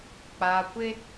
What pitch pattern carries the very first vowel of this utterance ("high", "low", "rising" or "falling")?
low